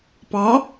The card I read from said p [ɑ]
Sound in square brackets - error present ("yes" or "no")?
no